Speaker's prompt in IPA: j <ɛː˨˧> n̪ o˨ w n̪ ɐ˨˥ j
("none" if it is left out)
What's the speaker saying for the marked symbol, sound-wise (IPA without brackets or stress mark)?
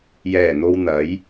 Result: ɛː˨˩